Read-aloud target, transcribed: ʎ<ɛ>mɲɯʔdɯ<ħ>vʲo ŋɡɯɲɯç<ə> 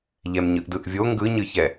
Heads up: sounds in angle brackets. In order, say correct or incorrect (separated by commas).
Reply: correct, incorrect, incorrect